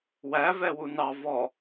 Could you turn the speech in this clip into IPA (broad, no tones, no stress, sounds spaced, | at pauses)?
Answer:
w æ v ɛ w u n ɑ v ɔ